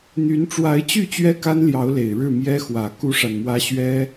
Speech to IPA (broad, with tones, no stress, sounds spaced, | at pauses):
n̪ y˧˥ n ʈ͡ʂ w a˧˥ ɪ̯ t͡ɕ y˥˩ t͡ɕ ɥ ɛ˥ k a˥ n l j ɑ˧˥ ʊ̯ l e˨˩ ɪ̯ ɻ ɻ̩˥˩ m j ɛ˥ x w ä˨˩ k u˥ ʂ a˨ n m w ä˥ ɕ ɥ ɛ˥